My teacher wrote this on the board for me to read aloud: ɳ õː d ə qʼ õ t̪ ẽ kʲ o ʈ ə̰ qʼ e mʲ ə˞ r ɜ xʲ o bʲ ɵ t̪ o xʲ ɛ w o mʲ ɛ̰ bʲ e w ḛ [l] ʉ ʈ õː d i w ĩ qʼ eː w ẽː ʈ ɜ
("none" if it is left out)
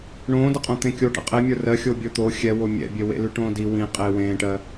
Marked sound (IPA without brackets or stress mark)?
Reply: l